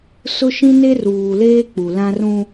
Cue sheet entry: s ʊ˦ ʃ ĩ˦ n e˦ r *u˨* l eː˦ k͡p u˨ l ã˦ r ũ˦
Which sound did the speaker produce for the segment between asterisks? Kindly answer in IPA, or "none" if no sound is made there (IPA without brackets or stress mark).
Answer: uː˨